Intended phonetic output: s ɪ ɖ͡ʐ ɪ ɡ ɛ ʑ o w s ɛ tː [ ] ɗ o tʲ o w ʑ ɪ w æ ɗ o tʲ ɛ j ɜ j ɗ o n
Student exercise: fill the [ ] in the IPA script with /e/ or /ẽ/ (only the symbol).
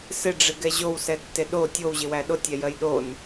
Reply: e